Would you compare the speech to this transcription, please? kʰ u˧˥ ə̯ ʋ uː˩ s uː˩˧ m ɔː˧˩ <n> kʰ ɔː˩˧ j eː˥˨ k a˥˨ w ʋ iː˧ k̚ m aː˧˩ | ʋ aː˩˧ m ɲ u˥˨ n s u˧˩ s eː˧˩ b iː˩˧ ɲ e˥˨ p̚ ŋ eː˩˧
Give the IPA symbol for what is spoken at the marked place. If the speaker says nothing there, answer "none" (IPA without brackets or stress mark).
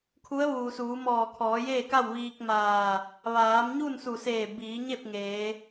none